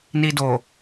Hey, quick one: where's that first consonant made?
tongue tip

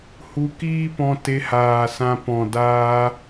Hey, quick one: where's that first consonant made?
throat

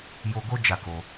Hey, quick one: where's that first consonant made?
palate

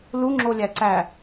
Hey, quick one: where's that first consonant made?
tongue tip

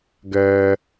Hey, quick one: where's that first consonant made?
velum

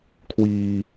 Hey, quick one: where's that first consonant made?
velum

